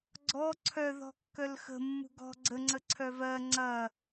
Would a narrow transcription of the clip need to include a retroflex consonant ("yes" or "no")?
no